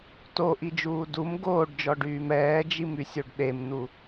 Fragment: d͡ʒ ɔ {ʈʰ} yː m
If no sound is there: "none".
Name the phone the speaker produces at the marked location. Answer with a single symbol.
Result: ɖ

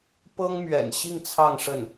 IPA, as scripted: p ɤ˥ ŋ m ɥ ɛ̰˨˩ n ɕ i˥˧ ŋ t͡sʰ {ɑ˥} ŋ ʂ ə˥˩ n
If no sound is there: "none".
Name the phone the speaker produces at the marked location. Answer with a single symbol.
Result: ɑ˥˧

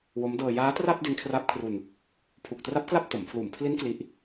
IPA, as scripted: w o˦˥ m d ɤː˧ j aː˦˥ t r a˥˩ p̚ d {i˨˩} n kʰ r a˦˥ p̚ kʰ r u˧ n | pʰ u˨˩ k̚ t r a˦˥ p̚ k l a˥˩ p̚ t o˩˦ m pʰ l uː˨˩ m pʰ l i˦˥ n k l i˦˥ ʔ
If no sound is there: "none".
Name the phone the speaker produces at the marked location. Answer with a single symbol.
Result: i˦˥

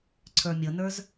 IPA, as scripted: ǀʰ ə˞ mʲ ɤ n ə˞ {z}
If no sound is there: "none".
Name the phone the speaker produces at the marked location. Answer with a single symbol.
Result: z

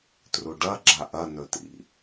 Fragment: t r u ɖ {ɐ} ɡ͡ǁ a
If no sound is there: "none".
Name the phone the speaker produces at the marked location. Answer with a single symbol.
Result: ɐ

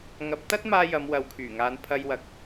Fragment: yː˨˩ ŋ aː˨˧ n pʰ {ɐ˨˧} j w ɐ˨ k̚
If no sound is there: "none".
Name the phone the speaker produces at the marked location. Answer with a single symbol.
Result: ɐ˧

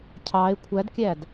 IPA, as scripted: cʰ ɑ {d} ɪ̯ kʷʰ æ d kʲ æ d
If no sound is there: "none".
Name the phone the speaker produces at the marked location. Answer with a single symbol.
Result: none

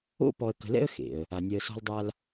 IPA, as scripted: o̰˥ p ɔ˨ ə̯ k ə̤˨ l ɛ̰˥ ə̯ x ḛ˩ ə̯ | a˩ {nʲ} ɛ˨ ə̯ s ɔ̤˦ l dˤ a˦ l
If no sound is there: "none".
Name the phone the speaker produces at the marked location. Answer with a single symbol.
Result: nʲ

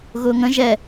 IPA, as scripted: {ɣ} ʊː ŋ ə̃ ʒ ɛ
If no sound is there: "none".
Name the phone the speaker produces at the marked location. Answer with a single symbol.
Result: ɣ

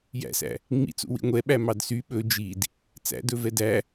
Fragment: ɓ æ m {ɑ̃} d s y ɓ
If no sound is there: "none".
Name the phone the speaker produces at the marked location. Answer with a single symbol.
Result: ɑ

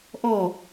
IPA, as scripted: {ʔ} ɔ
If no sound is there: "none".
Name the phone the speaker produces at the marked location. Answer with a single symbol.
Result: ʔ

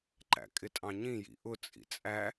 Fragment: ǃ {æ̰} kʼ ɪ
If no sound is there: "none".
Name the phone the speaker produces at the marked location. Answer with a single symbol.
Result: æ̰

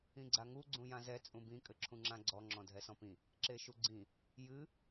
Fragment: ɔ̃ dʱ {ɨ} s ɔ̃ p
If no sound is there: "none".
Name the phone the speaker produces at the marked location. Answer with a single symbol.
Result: ɛ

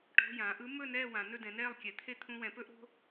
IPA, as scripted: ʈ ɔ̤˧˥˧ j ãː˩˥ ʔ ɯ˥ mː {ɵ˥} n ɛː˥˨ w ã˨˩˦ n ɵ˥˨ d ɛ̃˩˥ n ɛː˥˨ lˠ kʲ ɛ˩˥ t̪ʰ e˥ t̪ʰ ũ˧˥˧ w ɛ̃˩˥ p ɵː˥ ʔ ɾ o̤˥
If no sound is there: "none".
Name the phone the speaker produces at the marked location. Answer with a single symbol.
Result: ɵ˥˨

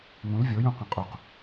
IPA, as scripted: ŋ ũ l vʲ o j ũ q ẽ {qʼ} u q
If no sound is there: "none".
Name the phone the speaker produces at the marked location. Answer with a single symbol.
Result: qʼ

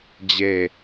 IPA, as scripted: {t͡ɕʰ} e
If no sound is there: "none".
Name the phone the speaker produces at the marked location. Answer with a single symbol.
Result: d͡ʑ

